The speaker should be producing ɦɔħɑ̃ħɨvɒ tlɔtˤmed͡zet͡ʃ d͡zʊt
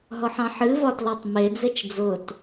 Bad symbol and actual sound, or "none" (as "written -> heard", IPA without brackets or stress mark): none